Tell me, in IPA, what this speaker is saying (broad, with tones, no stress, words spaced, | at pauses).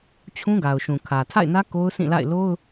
t͡ɕʰũ˦ɡa˨ʊ̯ʃũ˨kʰä˨ tʰa̰˦˨ɪ̯nä˦ ko˦ʊ̯sĩ˦˨la̰˦˨ɪ̯ lo˦ʊ̯